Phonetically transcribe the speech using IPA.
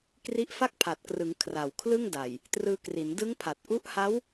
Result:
k r i˦˥ ʔ f a˥˩ k̚ pʰ a˨˩ t̚ k r ɯ˩˦ ŋ kʰ r a˨˩ w kʰ l ɯ˥˩ ŋ d a˨˩ j | t r ɯː˧ k r i˩˦ n d ɯ˦˥ ŋ pʰ a˨˩ t̚ ʔ u˦˥ ʔ h a˦˥ w

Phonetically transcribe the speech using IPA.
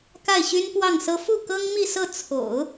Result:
k a˥˩ ɪ̯ ɕ y˥ n p w ɑ˥˩ ŋ s ɤ˥ f u˥˩ k ɤ˥ ŋ m i˥˧ s ɤ˥˩ t͡sʰ o̰˨˩˦ ʊ̯

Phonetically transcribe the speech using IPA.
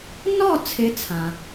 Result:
n ɔ˥˨ t͡sʰ ɪ˨˦ t͡sʰ ã˩

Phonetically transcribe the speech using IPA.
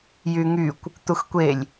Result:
j y ŋ y kʷ | t̪ u x kʷ e lʲ

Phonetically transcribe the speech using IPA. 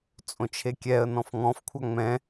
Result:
t͡sʼ õ t͡ʃʰ e kʲ ɛ ə̯ n ɔ̃ f ŋ ɔ̃ f kʷʰ a ŋ͡m ɛ̃

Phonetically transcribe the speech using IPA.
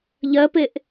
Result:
ʎ ɜ p e ʔ

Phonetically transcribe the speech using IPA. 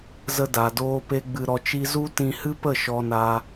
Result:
z ə˧ d a˨ d oː˧ p e˧ ɡ͡b ɨ˧ ɾ ɔ˧ t͡ʃ i˦ z u˦ t ĩ˧ h ɨ˦ p ə˦˨ ʃ ɔ˧ n a˧

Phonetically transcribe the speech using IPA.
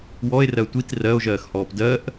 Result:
w ɔ e̯ r ɜ tʷ i t r ɜ o̯ ʒ ɜː x h ɔː p d ɜ ʔ

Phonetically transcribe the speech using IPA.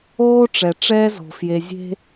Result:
oː˦ ʈ͡ʂ ɛ˨ ʈ͡ʂ ɛː˦ z o̤˨ f j e˨ zʲ e̤˦

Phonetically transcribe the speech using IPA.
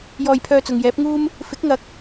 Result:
j ɔː˧ j pʰ œː˧ t͡s ʊ˨ ŋ j ɛː˨˥ p̚ ŋ uː˥ m | f ɪ˨˥ k̚ ŋ ɐ˨˥ k̚

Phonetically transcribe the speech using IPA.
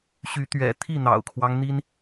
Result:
ɕ y˨˦ t̪ ɥ ɛ̰˨˩ t̪ʰ i˥˨ n̪ ɑ̰˨˩ ʊ̯ kʰ w ɑ˦ ŋ n̪ i˦ n

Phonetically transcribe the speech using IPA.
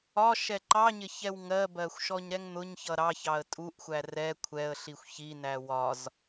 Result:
ɒ ʃ ɛ ǃ ɑ ɲ ɪ ç ɛ w ŋ ɜ b ɜ xʷ ʃ ɔ ɲ ɾ ɛ ŋ n̪ ʊ ɲ ç ʌ ɾ ɑ ç ɑ ə̯ tʼ u ʔ xʷ æ r ɛ kʷʰ ɛ ə̯ ɬ i xʷ ç i n æ w ɒ z

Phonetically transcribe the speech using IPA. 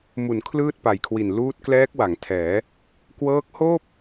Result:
m u˩˦ n kʰ l ɯː˥˩ t̚ p a˨˩ j kʰ w i˨˩ n l uː˦˥ t̚ k l ɛː˦˥ k̚ w a˩˦ ŋ tʰ ɛː˩˦ | k w ɤː˦˥ k̚ h oː˥˩ p̚

